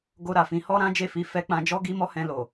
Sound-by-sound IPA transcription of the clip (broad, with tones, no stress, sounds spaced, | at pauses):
ɡ o˧ ɾ a˨ f ĩ˧ h ɔ˦ ɾ ã˦ d͡ʒ e˦˨ f i˧ f ɛ˧ k͡p ã˧ d͡ʒ ɔ˦ ɡ i˦ m ɔ˦ h ɛ̃˧ l o˨